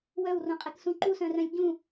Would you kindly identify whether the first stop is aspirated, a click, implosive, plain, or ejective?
ejective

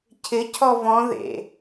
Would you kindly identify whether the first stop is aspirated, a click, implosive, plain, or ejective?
aspirated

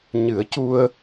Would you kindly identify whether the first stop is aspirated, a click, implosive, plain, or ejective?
plain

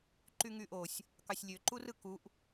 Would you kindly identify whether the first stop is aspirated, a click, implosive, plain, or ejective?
click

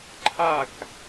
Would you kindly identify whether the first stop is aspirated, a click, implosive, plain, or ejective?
click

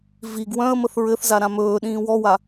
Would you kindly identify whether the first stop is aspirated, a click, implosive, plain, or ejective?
plain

